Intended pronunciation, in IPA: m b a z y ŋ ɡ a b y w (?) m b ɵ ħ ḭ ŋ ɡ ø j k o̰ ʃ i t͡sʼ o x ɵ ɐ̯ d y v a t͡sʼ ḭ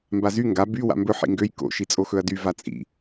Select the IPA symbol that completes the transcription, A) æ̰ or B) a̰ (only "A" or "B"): B